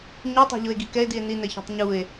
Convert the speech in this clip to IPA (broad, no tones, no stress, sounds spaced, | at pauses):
ɲ o tˤ a̤ ʎ ʊ e̯ ɡ i k ɛ e̯ d i e̯ n i n ɛ ç e̤ tˤ ɲ u e̯